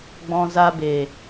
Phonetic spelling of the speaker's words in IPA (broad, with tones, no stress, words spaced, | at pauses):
ɡ͡bɔ̃˧ za˧be˨